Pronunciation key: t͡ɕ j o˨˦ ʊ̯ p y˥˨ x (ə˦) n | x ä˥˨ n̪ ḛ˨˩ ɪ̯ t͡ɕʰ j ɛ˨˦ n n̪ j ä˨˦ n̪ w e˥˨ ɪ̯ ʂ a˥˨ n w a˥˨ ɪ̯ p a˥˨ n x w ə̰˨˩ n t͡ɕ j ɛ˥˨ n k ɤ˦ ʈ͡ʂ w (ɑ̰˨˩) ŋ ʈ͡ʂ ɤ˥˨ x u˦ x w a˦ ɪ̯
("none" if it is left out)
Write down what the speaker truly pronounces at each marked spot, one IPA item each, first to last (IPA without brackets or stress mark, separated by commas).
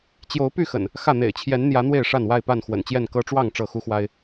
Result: ə̰˨˩, ɑ˥˨